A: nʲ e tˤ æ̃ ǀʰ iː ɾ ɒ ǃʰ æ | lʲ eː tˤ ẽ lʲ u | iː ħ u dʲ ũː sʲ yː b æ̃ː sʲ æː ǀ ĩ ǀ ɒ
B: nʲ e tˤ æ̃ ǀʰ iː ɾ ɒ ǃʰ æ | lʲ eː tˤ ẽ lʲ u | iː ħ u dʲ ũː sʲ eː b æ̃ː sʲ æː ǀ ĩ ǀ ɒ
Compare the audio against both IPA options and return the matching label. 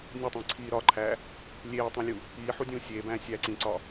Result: B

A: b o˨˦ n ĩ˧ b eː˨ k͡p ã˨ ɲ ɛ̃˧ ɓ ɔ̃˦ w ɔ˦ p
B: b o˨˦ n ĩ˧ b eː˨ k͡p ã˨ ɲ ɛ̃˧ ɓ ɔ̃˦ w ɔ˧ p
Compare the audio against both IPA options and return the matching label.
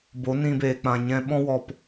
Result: B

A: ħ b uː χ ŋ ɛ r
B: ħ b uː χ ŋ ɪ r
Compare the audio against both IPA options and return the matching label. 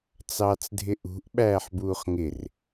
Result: B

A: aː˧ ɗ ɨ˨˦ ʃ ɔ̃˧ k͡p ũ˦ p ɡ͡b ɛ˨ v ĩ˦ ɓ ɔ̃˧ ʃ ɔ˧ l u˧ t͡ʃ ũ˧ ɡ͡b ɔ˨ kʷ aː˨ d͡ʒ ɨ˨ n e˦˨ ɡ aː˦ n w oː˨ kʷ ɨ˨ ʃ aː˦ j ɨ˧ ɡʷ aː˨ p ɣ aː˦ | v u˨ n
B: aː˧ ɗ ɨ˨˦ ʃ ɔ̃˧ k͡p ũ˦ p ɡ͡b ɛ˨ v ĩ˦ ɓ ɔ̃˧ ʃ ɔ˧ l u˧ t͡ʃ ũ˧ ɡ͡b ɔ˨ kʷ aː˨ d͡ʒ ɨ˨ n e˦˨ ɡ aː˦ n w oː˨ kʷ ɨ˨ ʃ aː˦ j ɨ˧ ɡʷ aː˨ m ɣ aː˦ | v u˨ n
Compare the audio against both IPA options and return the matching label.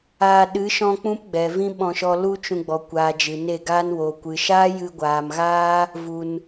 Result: B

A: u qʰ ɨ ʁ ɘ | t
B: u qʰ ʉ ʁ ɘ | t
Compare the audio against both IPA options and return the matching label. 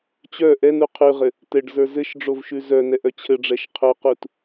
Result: B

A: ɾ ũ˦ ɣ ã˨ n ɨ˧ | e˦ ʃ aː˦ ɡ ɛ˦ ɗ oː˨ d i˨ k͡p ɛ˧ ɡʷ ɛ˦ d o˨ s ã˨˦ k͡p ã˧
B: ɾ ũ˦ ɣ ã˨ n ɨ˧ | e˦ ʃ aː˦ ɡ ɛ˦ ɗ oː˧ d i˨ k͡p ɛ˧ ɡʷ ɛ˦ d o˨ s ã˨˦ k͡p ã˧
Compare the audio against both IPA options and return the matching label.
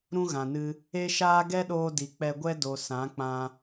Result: B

